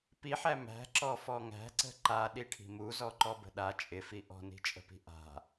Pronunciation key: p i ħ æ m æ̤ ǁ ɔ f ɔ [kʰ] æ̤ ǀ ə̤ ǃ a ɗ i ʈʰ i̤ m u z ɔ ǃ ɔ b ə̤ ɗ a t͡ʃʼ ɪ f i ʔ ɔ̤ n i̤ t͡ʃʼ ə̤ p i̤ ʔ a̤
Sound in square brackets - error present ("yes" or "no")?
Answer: yes